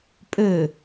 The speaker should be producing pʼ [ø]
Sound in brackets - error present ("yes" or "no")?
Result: no